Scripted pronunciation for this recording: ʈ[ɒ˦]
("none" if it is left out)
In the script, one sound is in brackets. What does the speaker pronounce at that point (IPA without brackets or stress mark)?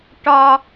ɒ˦